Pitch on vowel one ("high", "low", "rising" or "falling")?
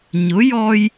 rising